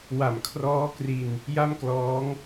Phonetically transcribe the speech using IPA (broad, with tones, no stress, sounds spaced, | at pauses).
w a˨˩ m kʰ r ɔː˦˥ k r i˧ n | j a˥˩ m k l ɔː˦˥ ŋ